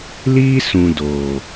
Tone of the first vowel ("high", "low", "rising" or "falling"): high